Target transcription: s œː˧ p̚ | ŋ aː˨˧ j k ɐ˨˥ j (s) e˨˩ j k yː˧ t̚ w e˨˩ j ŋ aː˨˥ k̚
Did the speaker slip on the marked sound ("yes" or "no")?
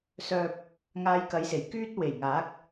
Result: no